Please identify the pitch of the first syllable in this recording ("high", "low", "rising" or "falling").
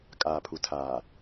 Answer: low